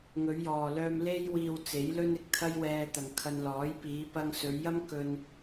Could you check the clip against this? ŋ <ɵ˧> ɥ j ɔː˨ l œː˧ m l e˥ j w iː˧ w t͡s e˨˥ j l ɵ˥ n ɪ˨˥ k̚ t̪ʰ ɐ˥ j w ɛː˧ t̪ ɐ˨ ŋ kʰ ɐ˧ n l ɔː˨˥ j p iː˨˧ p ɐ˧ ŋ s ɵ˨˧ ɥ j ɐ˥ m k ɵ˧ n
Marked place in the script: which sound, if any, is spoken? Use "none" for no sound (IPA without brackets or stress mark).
ɵ˨˧